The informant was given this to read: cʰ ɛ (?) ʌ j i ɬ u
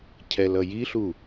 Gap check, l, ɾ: l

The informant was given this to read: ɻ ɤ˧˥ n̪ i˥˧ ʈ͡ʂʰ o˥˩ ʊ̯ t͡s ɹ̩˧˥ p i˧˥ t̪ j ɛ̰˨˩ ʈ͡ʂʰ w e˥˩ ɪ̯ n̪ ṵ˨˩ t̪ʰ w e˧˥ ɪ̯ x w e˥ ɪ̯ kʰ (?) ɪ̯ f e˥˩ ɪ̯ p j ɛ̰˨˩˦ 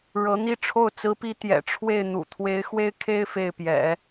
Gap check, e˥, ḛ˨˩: e˥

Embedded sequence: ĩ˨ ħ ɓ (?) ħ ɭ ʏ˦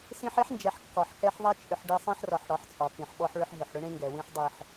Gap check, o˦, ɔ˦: ɔ˦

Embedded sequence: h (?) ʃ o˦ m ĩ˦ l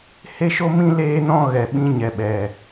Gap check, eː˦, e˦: e˦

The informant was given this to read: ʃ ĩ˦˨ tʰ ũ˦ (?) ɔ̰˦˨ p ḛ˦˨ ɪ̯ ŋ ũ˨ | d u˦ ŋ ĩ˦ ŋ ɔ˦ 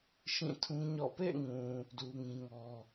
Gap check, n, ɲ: ɲ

